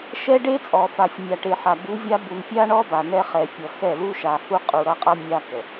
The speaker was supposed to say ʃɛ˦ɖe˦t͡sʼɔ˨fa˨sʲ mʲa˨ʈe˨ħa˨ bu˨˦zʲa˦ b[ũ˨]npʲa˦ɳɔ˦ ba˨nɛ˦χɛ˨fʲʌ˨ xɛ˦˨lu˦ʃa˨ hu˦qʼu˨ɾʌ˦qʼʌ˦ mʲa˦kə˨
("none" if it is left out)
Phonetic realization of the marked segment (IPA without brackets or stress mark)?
u˨